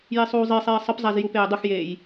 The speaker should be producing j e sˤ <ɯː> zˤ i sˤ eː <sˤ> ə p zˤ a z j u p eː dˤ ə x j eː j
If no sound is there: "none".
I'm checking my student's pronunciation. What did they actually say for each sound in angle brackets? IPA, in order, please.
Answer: uː, sˤ

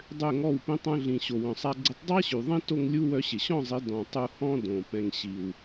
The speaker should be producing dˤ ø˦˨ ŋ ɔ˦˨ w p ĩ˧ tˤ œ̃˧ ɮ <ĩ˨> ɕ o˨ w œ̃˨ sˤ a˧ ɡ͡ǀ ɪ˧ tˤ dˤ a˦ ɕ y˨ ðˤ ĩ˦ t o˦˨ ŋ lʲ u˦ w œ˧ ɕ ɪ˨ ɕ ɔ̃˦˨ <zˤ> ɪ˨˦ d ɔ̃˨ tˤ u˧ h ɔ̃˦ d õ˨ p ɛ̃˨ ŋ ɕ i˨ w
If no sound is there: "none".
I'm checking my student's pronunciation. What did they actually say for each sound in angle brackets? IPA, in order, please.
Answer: ĩ˨, zˤ

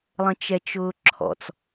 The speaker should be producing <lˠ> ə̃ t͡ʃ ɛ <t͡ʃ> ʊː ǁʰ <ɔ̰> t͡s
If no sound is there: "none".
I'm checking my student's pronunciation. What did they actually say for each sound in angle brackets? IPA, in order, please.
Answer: lˠ, t͡ʃ, ɔ̰

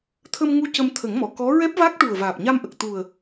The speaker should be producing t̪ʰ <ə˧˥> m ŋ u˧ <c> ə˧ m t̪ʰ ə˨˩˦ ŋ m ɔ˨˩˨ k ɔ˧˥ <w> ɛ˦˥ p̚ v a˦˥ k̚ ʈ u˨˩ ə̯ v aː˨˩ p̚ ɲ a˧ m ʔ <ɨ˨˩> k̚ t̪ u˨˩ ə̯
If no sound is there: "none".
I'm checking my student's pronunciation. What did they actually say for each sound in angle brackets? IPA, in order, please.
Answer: ə˧, c, ɹ, ə˨˩

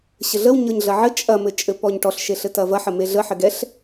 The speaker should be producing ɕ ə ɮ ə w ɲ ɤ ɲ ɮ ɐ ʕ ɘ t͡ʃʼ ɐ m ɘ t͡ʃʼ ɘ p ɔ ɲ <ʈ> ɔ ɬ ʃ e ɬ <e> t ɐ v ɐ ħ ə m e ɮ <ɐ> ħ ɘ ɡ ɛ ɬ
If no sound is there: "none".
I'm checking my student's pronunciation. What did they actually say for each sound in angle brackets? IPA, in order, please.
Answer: ʈ, ɘ, ə

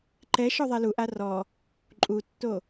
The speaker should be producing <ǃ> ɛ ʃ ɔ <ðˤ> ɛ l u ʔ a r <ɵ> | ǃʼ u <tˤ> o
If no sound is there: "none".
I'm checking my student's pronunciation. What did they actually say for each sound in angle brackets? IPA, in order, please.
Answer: ǃ, ðˤ, ɔ, tː

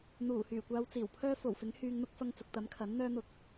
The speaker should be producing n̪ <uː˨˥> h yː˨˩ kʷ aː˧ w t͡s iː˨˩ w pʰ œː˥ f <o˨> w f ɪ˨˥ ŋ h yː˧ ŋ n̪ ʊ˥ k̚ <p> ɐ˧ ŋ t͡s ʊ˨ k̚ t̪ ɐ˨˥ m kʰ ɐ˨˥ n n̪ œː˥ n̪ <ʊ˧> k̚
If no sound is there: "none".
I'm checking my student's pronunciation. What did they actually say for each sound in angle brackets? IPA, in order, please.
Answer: uː˨˩, o˨˩, f, ʊ˧

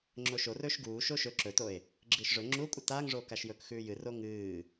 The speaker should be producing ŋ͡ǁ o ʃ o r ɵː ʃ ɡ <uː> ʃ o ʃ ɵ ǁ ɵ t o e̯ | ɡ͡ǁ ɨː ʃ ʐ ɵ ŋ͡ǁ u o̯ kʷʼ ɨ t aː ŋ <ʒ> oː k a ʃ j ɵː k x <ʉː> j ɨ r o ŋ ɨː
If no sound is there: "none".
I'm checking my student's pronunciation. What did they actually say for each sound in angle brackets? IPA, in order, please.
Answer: uː, ʐ, ʉː

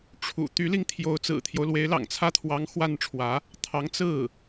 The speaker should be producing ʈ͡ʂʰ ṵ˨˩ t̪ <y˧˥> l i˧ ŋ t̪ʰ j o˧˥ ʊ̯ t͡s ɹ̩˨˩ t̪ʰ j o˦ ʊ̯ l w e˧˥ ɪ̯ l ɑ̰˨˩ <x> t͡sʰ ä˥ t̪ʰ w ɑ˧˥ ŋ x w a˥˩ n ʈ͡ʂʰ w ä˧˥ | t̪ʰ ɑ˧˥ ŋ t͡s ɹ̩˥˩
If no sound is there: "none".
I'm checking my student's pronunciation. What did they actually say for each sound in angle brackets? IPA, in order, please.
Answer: y˧˥, ŋ

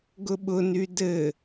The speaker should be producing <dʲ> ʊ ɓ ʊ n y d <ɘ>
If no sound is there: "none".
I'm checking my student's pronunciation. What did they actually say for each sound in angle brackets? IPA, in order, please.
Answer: ɡ, ɘ

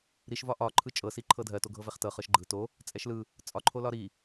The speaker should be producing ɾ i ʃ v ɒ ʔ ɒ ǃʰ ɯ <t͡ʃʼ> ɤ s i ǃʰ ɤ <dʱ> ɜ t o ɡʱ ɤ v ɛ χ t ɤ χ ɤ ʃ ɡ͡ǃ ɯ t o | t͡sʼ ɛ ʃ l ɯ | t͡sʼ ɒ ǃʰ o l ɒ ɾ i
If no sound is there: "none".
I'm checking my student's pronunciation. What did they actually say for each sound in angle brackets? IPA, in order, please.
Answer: t͡ʃʼ, dʱ

